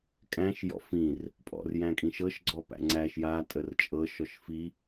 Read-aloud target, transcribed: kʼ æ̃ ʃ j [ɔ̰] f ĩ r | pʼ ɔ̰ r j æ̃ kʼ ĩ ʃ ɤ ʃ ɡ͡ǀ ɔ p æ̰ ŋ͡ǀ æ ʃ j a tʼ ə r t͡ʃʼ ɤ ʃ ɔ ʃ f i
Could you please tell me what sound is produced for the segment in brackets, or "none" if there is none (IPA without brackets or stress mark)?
ɔ̰